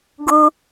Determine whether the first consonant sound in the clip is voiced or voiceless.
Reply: voiced